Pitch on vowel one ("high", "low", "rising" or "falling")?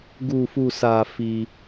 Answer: low